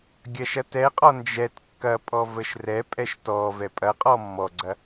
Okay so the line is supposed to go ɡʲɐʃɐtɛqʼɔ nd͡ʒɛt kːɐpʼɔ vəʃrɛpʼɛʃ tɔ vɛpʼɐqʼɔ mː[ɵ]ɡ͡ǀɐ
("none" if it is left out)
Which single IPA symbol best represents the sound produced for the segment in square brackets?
ɔ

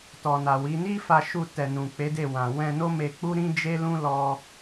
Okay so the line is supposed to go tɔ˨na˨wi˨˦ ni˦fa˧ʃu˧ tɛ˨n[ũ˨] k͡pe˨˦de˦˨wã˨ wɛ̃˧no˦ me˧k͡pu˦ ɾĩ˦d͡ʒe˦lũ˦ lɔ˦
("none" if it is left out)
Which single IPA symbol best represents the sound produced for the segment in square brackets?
ũ˨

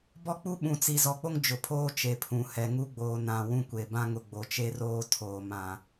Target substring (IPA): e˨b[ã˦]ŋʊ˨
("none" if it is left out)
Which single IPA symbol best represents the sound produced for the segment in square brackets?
ã˦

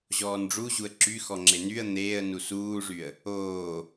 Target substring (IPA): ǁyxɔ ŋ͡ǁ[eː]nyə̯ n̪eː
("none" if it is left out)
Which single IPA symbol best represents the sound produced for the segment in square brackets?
e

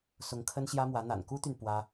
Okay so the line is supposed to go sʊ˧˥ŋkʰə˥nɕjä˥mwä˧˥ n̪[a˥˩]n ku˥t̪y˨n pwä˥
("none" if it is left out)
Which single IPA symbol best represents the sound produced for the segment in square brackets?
a̰˨˩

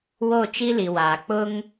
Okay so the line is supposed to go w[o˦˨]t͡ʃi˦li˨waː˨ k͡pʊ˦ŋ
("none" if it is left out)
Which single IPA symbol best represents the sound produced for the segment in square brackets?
o˦˨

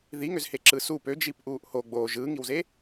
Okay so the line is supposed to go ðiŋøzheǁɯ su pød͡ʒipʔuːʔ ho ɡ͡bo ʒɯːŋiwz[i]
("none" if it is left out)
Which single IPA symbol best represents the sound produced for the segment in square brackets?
e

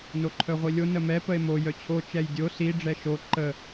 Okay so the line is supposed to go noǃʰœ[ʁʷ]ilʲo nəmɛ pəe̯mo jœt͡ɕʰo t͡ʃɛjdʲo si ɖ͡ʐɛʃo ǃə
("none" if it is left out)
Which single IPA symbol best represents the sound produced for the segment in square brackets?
ʁʷ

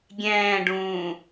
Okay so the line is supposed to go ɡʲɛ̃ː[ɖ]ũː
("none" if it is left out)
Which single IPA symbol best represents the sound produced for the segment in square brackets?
ɖ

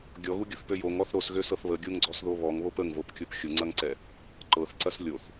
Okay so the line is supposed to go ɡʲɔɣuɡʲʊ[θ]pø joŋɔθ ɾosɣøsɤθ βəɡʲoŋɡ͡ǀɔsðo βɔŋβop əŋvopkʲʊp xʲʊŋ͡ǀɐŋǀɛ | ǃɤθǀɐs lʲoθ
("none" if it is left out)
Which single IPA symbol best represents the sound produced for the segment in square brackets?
θ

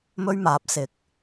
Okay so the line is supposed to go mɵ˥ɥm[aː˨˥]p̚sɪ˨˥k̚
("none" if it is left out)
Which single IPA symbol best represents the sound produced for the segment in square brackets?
aː˨˥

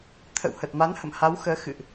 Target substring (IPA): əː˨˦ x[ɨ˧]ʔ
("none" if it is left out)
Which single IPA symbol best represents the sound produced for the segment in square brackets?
ɨ̰˧˨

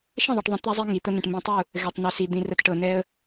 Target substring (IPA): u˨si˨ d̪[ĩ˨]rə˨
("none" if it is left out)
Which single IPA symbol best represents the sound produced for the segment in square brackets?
ĩ˨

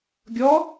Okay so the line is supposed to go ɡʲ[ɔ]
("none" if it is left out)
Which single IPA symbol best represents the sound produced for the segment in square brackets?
ɔ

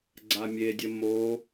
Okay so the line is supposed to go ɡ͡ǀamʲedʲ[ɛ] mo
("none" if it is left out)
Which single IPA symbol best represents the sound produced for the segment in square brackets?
ə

